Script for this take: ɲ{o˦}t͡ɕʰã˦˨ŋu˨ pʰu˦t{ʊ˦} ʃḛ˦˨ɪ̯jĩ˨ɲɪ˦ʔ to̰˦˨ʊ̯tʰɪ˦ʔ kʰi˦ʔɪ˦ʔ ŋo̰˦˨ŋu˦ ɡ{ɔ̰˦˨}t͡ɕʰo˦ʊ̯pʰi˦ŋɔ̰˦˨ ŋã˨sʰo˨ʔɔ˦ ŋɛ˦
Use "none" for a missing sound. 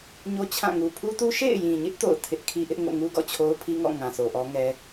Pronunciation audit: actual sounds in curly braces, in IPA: o˦, u˦, ɔ̰˦˨

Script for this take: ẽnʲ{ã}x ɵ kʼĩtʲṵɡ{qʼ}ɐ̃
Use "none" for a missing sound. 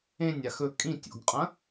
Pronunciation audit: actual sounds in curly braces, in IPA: a, qʼ

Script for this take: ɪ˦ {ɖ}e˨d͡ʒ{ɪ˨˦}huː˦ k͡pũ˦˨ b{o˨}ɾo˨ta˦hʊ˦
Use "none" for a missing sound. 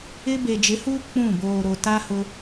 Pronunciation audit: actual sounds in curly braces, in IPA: b, ɪ˨˦, oː˨

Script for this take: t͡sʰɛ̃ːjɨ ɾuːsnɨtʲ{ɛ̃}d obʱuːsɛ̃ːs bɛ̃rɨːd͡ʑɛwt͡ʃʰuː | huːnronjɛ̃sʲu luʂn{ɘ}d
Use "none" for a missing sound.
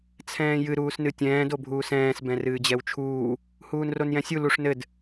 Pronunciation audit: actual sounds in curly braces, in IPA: ɛ̃ː, ɘ

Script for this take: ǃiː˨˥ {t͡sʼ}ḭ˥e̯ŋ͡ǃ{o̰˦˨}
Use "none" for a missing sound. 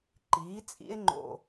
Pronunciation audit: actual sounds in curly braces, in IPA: t͡sʼ, o̰˦˨

